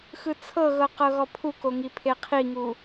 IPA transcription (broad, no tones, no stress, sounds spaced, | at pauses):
x ɯ t͡sʰ ɤ ɣ ɤ q ɤ ɣ ɔ pʰ u k o ŋ i pʰ e qʰ i ŋ u